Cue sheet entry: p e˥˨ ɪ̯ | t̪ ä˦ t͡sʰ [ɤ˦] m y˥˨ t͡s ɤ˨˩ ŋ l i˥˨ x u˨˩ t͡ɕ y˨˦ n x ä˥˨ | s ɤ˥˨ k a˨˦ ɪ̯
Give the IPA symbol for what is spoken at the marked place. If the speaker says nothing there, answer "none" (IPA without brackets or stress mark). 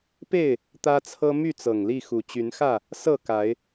ɤ˦